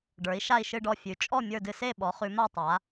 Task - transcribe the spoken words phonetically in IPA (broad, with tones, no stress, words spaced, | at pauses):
ɖə˞˩˧i̯ʃa˦˨i̯ʃɨ˦˨ɖɔ˦˨ fʲʉ˩˧ t͡ʃʼɔ˦˨ mʲə˞˦˨dɨ˦˨ se˦˨ɓɔ˩˧ χʉ˩˧ma˦˨ tˤa˩˧